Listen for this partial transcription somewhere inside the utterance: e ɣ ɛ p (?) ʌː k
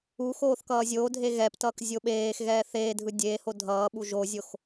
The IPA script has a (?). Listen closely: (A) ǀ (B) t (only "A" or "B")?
B